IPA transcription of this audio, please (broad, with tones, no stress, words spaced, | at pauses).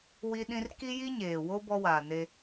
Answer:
wi˦ɗĩ˦r ki˦ji˦ɲeː˨wo˦ bɔ˦waː˨ne˦